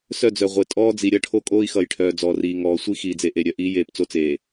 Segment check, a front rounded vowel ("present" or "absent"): present